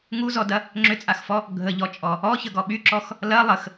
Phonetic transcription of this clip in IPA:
ŋuzɔdɐ | ŋ͡ǁʏt͡sʼaxfɔ | ɡʱəʎɔt͡ʃʼɔ | ɔçəɡɔ ɓyǁɔx | lɐ lˠəx

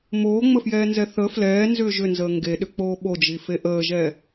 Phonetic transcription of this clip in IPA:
moːŋ͡məfjɛːnzɛ θə flɛːnzʏː ʒʏnzəː ŋɡeɗʏk͡poː ɓod͡ʒife ʔəːʒɛ

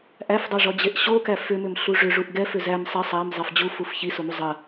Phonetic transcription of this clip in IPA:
ʔæfdˤɛʐɔd͡ʑeʔ ɕokæ fʏmʏmɬu ʐʏʐuʔ ɡɛfʏ zæm sˤɛ sˤæmzˤæf d͡ʑufuf çisomu zˤɐ

